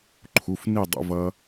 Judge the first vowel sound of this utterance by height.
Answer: high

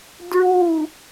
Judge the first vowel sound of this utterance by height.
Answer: high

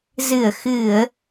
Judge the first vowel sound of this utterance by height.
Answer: high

